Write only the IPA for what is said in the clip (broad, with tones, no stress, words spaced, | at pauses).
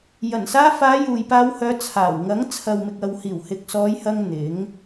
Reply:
jɐ˨˩nsaː˧faː˨˧ juː˨jpaː˧w hœː˨˧t͡sʰaː˨˩wŋɐ˨˥ŋ t͡sʰɐ˨wmɪ˨k̚ɐ˨whiː˨˩w hɪ˨k̚sɔː˨˧jhɐ˧ŋ n̪ɪ˨˥ŋ